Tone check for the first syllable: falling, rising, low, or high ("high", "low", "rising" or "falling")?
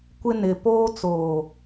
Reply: high